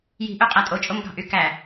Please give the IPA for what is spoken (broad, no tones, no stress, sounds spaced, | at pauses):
j i̤ ʔ ø qʼ æ tʼ o t͡ʃʼ o m ɡ ɑ̤ ʔ y k æ